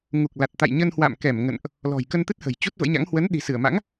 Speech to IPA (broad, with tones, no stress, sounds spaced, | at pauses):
ŋ u˨˩ k̚ l a˨˩ t̚ t̪ a̰˧˨ j ɲ ə˧ n h w a̰˧˨ m k ɛ˧˩ m ŋ ə̰˧˨ n ʔ | l ɔ̤˨˩ j k ə˧ n t̪ ɨ˦˥ t̚ h ə̤˨˩ j t͡ɕ u˦˥ t̚ v ə̰˧˥ j ɲ a̰˧˥ ŋ h w ə˨˦ n ɗ i̤˨˩ s ɨ˧˩ ə̯ m a̰˧˥ ŋ